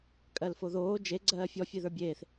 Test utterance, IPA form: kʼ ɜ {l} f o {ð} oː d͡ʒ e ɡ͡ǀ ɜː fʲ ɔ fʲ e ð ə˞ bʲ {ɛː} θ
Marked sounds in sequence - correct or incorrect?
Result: correct, correct, incorrect

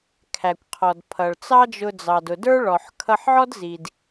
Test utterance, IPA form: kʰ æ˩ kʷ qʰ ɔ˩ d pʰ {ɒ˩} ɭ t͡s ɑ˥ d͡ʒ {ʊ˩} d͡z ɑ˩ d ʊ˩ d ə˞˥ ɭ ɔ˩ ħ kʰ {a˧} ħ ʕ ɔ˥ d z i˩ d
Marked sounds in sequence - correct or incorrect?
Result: incorrect, incorrect, incorrect

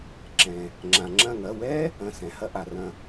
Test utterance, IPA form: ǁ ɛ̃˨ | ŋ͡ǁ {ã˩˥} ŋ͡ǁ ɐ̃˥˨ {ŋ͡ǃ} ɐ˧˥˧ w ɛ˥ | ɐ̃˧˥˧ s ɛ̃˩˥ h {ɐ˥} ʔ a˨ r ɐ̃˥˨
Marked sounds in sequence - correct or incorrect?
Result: incorrect, incorrect, correct

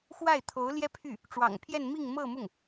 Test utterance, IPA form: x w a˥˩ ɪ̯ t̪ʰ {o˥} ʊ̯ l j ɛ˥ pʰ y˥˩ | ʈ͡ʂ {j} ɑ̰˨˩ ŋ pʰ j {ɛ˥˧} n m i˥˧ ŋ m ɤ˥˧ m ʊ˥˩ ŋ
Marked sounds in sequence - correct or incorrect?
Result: incorrect, incorrect, correct

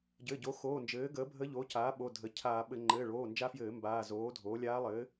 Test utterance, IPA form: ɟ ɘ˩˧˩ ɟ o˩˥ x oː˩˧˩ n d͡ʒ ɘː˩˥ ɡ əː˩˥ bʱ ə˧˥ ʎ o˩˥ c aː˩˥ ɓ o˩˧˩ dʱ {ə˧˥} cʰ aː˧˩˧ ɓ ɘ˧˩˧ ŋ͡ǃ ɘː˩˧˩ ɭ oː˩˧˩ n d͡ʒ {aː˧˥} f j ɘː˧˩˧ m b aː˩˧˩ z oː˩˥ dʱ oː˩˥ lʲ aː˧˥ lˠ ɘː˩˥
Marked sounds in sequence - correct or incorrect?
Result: incorrect, incorrect

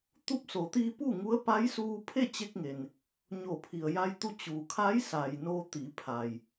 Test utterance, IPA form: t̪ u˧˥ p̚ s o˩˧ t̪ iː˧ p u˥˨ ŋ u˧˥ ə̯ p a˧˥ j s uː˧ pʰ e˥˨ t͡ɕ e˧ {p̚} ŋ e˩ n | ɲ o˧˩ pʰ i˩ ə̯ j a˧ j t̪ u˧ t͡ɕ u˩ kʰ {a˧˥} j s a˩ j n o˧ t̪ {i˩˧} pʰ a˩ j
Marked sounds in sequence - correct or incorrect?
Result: incorrect, correct, correct

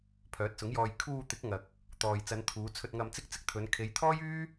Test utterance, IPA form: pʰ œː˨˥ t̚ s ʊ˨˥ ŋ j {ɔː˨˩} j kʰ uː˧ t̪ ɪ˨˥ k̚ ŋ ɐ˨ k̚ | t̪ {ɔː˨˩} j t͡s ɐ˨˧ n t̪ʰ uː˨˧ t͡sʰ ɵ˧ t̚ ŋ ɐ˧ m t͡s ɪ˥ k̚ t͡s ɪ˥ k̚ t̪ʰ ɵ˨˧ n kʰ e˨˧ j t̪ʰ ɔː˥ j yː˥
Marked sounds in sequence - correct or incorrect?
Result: incorrect, incorrect

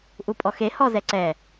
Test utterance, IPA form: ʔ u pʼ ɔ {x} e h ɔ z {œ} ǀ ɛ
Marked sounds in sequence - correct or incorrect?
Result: correct, incorrect

